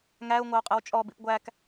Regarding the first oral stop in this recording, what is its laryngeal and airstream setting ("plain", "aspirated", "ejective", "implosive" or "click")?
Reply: ejective